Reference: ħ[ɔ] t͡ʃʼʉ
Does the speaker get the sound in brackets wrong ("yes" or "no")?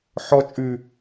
no